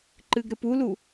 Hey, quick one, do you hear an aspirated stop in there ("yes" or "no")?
no